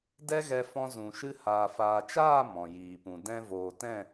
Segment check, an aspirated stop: absent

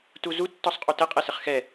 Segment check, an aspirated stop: absent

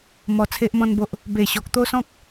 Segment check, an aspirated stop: present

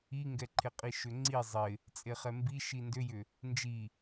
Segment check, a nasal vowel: absent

